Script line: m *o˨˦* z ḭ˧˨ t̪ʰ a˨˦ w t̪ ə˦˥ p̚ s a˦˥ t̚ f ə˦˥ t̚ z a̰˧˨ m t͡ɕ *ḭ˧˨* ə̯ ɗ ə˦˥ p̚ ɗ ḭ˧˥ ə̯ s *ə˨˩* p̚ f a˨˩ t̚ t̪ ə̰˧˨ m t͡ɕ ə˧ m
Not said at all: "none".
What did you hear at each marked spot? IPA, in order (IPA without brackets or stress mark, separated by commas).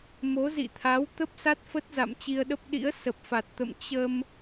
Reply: o˨˦, i˧, ə˨˩